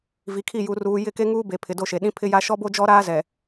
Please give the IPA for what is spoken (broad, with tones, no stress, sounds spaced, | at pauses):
v i˨ kʰ i˦˨ j u˨ r uː˨ j ɪ˦˨ k e˦ ŋ uː˦ b e˨ pʰ ɪ˨ d o˦˨ ʃ e˨ ɗ ĩ˦ pʰ ɪ˦ j a˦ ʃ ɔ˦ b o˦ d͡ʒ ɔ˦ ɾ aː˦ z ɛ˨